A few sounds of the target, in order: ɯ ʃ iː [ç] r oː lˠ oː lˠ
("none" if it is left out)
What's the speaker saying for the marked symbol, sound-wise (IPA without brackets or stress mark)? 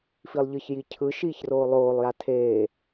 ç